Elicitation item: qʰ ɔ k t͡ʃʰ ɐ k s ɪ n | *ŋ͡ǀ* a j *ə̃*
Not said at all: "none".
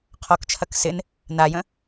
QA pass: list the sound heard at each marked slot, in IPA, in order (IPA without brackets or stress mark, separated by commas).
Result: n, ə̃